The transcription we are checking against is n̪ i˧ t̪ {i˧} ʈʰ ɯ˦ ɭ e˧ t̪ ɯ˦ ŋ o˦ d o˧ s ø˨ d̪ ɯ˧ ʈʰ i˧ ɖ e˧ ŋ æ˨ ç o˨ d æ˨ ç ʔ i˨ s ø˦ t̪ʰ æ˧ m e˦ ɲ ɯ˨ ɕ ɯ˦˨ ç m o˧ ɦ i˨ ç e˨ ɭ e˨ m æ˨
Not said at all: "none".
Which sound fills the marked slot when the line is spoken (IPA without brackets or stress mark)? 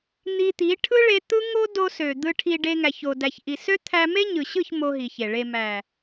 i˨˦